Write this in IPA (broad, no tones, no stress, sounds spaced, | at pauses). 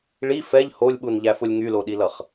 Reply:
ɭ i f ɛ ʎ h o lʲ ɓ u n ʎ æ f ʊ lʲ ŋ y l o ɗ i l ʌ χ